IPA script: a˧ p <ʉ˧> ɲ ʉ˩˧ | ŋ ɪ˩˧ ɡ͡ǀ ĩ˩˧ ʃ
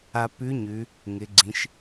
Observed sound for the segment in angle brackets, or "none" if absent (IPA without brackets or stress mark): ʉ˧˥